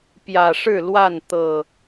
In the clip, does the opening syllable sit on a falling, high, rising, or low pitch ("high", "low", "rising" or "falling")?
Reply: low